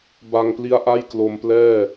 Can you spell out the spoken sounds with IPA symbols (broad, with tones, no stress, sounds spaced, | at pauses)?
b a˧ ŋ p l i˦˥ a̯ ʔ a˥˩ j k l o˧ m p l ɛː˥˩